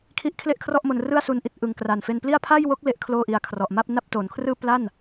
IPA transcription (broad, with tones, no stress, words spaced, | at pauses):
kʰi˥˩ʔ kʰle˥˩ʔkʰrɔ˥˩ʔ mo˧nrɯ˥˩a̯su˧nʔi˦˥t̚ ʔɯ˨˩ŋkra˨˩nfe˧npli˥˩a̯ pʰa˥˩jwo˦˥k̚ le˥˩ʔkʰloː˥˩ʔi˧a̯ kʰrɔ˨˩ʔma˥˩p̚ na˥˩p̚toː˩˦nkʰrɯː˥˩ pla˥˩n